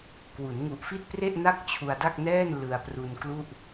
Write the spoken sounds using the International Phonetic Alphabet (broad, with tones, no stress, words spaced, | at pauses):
kwu˩˦nŋu˨˩ʔfi˥˩t̚pre˥˩ʔ na˥˩k̚t͡ɕʰu˧a̯da˥˩k̚nɛː˥˩n lɯ˧a̯pru˧n klu˥˩ʔ